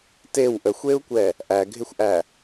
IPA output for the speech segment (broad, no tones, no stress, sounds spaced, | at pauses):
t e w ʔ ə xʷ e u̯ kʷ ɛ | ʔ æ ɡʱ ɪ xʷ ʔ æ